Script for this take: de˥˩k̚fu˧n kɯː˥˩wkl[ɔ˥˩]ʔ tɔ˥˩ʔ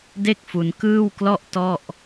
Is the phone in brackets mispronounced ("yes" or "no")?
no